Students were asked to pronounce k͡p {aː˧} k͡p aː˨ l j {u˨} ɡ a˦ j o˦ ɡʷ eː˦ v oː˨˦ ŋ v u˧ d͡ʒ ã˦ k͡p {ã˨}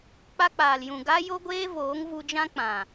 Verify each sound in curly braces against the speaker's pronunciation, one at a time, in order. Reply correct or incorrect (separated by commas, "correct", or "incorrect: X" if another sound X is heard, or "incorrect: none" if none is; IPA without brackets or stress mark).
incorrect: a˧, incorrect: ũ˨, correct